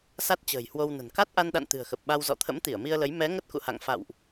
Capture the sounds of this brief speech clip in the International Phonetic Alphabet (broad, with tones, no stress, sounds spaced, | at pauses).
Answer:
s a˦˥ t̚ t͡ɕ ə̤ː˨˩ j h w o˧ w n ə̤˨˩ n k a˦˥ t̚ ʔ a˧ n ɗ a̰˧˨ n t̪ ɨ̤˨˩ ə̯ x ə˨˩ p̚ ɓ a˧ w z ɔ̰˧˨ t̪ʰ ə̰˧˥ m t̪ i˧˩ ə̯ m i˧ ə̯ l ə˨˦ j m ɛ˨˦ ŋ ə˦˥ t̚ k ṵ˧˨ h a̰˧˨ ŋ f a̰˧˨ w ʔ